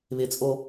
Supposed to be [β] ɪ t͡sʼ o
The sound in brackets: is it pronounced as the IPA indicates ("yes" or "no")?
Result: yes